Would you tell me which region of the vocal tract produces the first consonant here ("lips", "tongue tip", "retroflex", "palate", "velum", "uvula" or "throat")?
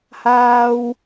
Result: throat